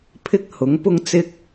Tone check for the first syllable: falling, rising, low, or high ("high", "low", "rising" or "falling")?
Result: high